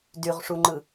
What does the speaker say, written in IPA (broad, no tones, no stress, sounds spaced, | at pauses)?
d y ʁ ʂ u ŋ͡ǃ ɯ